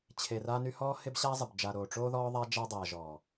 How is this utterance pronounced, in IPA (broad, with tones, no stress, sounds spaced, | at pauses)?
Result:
t͡ɕʰ e˨ r a˦ n y˦ h ɔː˦ h ɪ˦ b ɕ aː˦ zˤ ɪ˨ b d͡ʒ a˨ ɾ oː˨ ʈ͡ʂ oː˦ ð ɔː˦ ðˤ a˦ d͡ʒ a˦ dˤ aː˨ ʒ ɔː˨